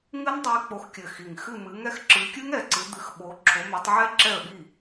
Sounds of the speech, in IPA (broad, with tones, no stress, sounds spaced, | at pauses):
ŋ ɨ˦˥ n dˤ i˨˦ k͡p o˨˦ x kʲ ɘ˨˩ x i˨˩ ŋ x ɨ˥˩ m ɨ˨˦ ŋ ɛ˥˩ x ǁ ɨ˨˦ kʲ ɨ˦˥ ŋ ɛ˨˩ ǀ ɨ˨˦ d̪ ɨ˨˦ x ɓ o˨˦ ǁʰ o˨˦ m ɛ˨˦ tˤ ʕ ɛ˦˥ ǁ ɛ˥˩ ə̯ ɓ i˥˩